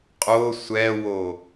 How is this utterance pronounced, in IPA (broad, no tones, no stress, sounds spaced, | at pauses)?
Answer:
qʼ o sʷ ɛ w o